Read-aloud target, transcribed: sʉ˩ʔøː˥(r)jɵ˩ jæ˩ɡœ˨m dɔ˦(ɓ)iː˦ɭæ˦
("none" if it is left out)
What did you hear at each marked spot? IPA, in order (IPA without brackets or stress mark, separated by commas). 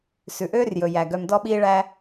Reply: r, ɓ